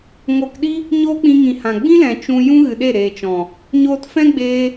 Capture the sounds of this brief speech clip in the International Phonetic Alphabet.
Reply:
ŋ o˧ k ɗ i˦ | ɲ oː˦ k͡p ĩ˧ ŋ ĩ˨ h ã˨ ɡ͡b ĩ˦ l ɛ̃˨ t͡ʃ ũ˧ j ũ˦ ɣ ɨ˨ ɗ e˦˨ ɾ eː˨ t͡ʃ ɔ̃˨ | ɲ oː˧ t f ɛ̃˦ ɡ͡b eː˧

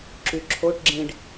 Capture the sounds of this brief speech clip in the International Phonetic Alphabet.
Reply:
ǁ y ǁʰ o ʈ ɡ͡ǁ ĩ ɖ

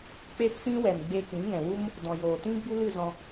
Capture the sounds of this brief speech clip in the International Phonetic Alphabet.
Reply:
k͡p e˦ p k͡p ĩ˦ w ɛ˨ n ɡ͡b e˧ k ĩ˨˦ ŋ ɛ̃˨ w u˦ m | d ɔ̃˨ j oː˨ t ĩ˦ ɡ͡b u˦ l ɨ˦˨ z ɔ̃˧

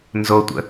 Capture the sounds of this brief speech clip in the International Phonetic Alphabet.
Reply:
n z o tʷ ə̰

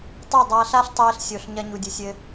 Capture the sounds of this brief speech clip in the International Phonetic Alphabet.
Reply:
tˤ u˦˨ dˤ a˧ ɬ a˦ ɬ tˤ eː˧ ɬ sʲ o˨ ɬ ɲ ɐ˧ ɲ u˨ dʲ ɨ˨ sʲ ɘ˧

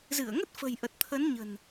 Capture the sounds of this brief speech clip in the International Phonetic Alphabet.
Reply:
z ɨ˧˩ ə̯ ŋ ə˦˥ t̚ f ə̤˨˩ j ʔ ə˨˩ t̚ t̪ʰ ə˨˦ n ɲ ə̤˨˩ n

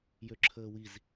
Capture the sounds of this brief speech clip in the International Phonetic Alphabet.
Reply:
j ø ǁʰ əː w i z

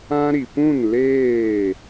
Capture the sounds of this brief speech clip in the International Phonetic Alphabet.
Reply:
ã˦ ɾ i˨ p ũ˦˨ n l eː˦˨

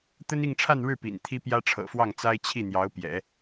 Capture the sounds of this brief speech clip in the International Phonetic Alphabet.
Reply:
t̪ ə˥ n i˥˧ ŋ ʈ͡ʂʰ a˥˧ n ɻ ɻ̩˥˩ p ḭ˨˩ n t̪ʰ i˥ p j ä˥ ʈ͡ʂʰ ɤ̰˨˩ f w ɑ˥˩ ŋ t͡s a˥ ɪ̯ t͡ɕʰ i˥˩ n̪ j ɑ˧˥ ʊ̯ p j ɛ̰˨˩˦

